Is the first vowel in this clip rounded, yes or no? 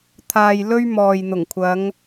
no